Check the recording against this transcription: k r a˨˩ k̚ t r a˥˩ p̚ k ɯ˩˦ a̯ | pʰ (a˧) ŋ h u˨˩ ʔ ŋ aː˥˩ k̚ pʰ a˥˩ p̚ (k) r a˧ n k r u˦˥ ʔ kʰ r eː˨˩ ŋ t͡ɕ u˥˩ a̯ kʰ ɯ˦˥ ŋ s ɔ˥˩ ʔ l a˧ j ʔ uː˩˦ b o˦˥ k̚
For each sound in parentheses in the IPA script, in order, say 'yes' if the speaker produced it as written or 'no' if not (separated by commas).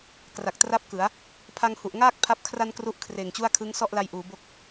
yes, no